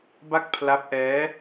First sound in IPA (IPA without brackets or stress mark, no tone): b